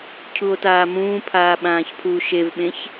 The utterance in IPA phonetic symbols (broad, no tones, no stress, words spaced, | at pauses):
cʰuo̯taːmũːpʰaː ɓãːçpʰuːʃevɓẽç